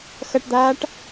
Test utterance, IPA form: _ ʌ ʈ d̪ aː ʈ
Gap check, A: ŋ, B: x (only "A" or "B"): B